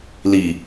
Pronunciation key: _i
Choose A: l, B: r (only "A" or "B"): A